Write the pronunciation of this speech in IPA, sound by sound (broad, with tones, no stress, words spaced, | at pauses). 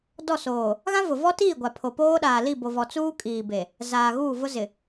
dɔ˦˨soː˨ | ɣã˦vʊ˨vɔ˦tiː˦˨ ɡʷa˨pʰo˨ poː˦ɗaː˨li˦˨ bo˨vɔ˨t͡suː˦ kʼiː˨be˨ | zaː˨ɣuː˦˨vʊ˦ zɪ˨